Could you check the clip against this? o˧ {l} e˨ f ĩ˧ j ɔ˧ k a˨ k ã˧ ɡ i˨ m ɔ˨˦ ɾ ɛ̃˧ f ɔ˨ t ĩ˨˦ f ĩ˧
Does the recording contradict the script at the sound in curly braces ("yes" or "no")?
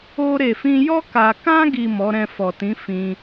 yes